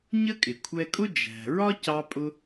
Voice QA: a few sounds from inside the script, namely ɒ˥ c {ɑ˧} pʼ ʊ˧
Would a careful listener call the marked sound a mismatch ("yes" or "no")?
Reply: no